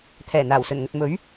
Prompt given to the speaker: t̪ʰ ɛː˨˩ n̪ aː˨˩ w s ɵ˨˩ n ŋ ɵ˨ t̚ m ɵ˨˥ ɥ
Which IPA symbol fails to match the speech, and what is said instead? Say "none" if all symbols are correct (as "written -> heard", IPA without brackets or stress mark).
none